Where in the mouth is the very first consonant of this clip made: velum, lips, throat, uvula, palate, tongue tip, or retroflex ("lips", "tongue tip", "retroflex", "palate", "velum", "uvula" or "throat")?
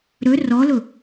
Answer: tongue tip